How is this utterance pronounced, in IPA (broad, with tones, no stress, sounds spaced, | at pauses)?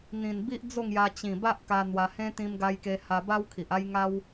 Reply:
n̪ ĩ˨˩ n b i˦ ʔ d͡z o˥˧ ŋ j a˧ t͡ɕ ĩ˨˩ b a˦ ʔ k a˧ n̪ w a˧ h ẽ˦ t̪ ĩ˧ m ɡ a˧ j k e˧ h a˧ b a˦ w kʰ i˨ ʔ a˦ j ŋ a˦ w